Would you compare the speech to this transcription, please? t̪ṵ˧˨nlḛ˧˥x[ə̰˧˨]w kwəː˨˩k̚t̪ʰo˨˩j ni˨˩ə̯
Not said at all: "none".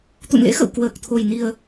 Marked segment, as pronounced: ə̰˧˨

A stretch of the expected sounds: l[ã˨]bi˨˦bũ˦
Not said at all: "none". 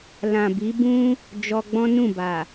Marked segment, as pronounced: ã˨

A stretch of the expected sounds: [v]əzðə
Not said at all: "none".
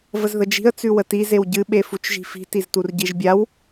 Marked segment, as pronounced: v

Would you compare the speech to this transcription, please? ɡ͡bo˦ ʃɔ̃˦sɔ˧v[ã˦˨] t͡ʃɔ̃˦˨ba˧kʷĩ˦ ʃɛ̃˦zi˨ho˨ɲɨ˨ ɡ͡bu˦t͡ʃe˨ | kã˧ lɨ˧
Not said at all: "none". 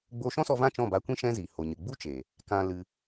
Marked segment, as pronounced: ã˦˨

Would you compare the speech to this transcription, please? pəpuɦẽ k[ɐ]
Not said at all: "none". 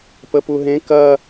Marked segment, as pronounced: ɐ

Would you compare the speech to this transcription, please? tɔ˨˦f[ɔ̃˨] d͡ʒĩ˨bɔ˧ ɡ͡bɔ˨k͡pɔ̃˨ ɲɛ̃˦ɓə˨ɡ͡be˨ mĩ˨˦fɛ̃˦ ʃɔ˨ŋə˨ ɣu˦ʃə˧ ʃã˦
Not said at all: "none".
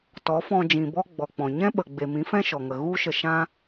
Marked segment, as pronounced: ɔ̃˧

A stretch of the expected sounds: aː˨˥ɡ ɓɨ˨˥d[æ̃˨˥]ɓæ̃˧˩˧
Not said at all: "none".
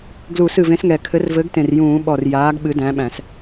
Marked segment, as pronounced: æ̃˨˥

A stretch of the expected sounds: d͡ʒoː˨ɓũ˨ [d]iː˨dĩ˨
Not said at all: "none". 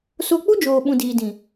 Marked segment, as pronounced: d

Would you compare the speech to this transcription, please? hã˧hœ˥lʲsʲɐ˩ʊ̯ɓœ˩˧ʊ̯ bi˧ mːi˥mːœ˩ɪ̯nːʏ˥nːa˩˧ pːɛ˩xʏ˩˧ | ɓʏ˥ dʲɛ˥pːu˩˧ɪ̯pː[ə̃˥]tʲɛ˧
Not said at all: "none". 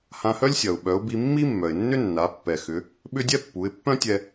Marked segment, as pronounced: œ̃˥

